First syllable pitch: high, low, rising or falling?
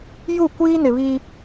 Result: falling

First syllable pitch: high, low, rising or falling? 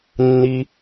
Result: low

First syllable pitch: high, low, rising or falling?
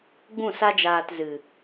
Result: falling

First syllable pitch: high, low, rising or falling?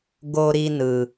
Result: high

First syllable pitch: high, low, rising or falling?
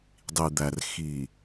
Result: low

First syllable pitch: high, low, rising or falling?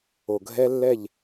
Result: low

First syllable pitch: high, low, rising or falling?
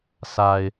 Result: low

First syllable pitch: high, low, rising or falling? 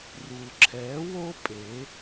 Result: low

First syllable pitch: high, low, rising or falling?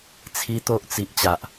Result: high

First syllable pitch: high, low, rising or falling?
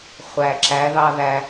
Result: low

